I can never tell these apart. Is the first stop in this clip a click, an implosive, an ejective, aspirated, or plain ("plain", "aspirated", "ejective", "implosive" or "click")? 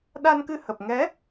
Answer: implosive